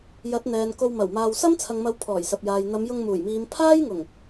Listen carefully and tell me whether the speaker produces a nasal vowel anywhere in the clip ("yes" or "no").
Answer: no